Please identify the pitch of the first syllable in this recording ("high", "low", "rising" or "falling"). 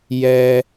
high